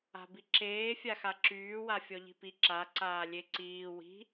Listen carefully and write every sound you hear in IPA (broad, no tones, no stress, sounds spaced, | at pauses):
a̤ b i ǁ eː fʲ a x a ǁ yː w a fʲ ɔ ʎ i̤ p i ǁ a ǀ aː lʲ e ǀ iː w i̤